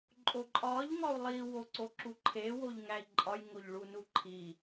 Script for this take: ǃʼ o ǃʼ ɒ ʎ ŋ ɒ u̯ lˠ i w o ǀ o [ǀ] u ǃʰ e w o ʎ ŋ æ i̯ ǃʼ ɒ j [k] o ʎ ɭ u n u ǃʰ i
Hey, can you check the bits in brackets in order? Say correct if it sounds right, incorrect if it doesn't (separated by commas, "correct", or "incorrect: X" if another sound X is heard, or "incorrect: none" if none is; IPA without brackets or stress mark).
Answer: incorrect: ǁ, incorrect: ŋ